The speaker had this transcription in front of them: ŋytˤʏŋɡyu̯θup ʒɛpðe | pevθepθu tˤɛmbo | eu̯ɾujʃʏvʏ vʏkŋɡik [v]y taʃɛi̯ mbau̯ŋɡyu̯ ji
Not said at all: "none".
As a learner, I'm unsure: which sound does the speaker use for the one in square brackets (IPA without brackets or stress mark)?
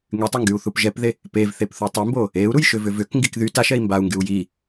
ð